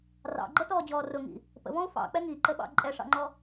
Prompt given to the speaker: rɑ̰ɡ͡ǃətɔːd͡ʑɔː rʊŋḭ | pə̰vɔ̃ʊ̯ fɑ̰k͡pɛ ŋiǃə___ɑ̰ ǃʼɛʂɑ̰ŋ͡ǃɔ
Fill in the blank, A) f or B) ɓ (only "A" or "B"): B